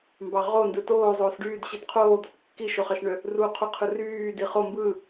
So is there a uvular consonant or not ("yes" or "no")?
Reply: yes